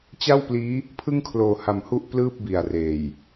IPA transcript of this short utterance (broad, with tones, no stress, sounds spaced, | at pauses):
t͡ɕ a˥˩ w p l iː˦˥ | pʰ ɯ˥˩ ŋ kʰ l oː˨˩ h a˩˦ m h u˥˩ ʔ p l ɯː˥˩ p̚ b i˨˩ a̯ r eː˨˩ j